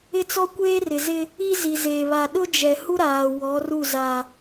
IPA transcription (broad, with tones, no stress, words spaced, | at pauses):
ɪ˦t͡sɔ˦kʷeː˦rɪ˨ zɪ˦ | i˦zi˨ zeː˨βa˨ ɗʊ˦d͡ʒɛ˨hu˦ ɾaː˨ wɔ˨˦ru˦˨ za˨